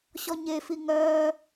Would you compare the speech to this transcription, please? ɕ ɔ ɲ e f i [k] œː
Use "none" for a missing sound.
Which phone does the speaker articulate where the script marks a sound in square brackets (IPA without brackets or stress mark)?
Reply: ŋ